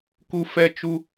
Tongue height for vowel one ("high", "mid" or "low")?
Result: high